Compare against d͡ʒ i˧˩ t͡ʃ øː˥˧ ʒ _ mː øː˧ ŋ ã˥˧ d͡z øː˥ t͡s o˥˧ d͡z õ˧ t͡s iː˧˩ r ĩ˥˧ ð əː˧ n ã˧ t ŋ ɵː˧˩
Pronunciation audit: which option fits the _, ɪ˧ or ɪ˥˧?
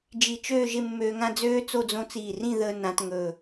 ɪ˥˧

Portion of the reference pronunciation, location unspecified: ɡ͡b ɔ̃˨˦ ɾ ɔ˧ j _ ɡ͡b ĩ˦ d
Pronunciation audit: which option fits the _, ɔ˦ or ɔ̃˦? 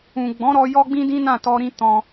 ɔ˦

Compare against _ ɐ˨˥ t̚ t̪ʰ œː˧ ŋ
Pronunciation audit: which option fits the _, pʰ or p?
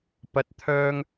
p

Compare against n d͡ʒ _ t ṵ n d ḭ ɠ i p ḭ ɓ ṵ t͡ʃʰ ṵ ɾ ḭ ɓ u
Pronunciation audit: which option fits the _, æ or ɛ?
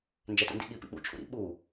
æ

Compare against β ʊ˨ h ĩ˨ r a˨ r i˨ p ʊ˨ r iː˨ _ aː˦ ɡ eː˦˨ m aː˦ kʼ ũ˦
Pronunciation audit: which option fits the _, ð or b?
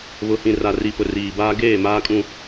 b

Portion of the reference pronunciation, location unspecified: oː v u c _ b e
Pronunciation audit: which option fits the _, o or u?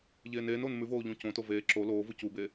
u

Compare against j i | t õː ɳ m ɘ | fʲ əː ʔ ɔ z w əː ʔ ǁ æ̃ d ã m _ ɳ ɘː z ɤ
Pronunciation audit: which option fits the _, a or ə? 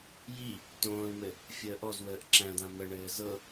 ə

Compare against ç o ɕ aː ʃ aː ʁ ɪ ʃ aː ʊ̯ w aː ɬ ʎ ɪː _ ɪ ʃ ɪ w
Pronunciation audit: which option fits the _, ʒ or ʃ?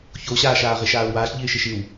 ʃ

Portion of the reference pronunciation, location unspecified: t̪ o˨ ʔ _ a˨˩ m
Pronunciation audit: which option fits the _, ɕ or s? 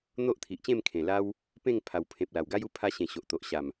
ɕ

